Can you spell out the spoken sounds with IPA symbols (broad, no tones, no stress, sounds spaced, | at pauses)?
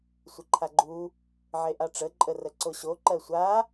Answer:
sʷ ə ǃʰ a ɡ͡ǃ u | ʕ e ʔ a ʈ͡ʂ ə ǃʼ ə r ə ǀ o ɕ o ǃ ɜ sʷ a